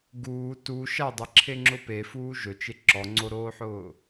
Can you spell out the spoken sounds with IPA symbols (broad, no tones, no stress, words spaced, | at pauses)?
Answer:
ɡuː tu ʃadˤeǁʰeŋ͡ǁʊ pefuː ʒɵt͡ʃe ǁɔŋ͡ǀoɾoːħʊː